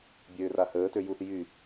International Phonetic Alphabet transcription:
bʲøːrahəːtø juθ jy

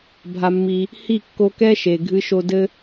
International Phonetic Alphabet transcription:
bʱa˧mːi˧ | hi˦˨kːo˧kɛ˦ ʃe˨ ɡʱɨ˧ʃo˧dɘ˦

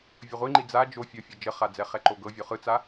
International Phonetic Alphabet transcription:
vʲəʁʷiŋ͡ǃi d͡za d͡ʒo fʲɤfʲɤ d͡ʒəχa d͡zɛχɛǃoɡɤ vʲoχɯt͡sa

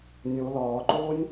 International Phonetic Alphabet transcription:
nʲo lɒːǃoːnʲ

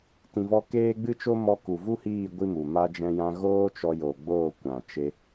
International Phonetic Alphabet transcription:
tĩ˧vɔ˦ keː˦ ɡ͡bɨ˦t͡ʃo˦ mɔ˧ku˨vu˦hiː˦˨ ɡʷi˦mu˨ ma˧d͡ʒɛ̃˧jã˧ɣoː˦ t͡ʃɔ˧jo˨ɡ͡boː˦˨ kʷã˨t͡ʃe˧

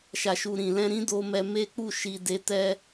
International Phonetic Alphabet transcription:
ʃa˨ʃu˨ɾĩ˨ lɛ̃˧ ɾĩ˦ do˦mɛ˦ me˦k͡pu˦˨ ʃi˧de˧ tɛ˦

